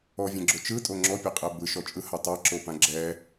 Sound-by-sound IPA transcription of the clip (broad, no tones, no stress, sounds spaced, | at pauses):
ɔ vʲ ɛ̃ ɡ͡ǁ o t͡ʃ ɯ tʼ o ŋ͡ǁ ɔ pʲ e qʼ ɛ b ɯ ʃ ɔ t͡ʃʼ ɯ h a tˤ a ǁ o p ã ɡ͡ǁ ɛ